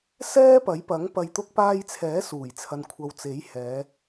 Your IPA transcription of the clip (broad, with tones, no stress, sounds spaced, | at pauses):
s ɛː˥ p ɐ˨˥ j p ɐ˨˥ ŋ p ɐ˨ j t̪ ʊ˧ k̚ p aː˧ j t͡sʰ ɛː˨˥ s uː˨˩ j t͡sʰ ɐ˨ n kʷʰ ɐ˨ w t͡s e˨˥ j h ɛː˨˧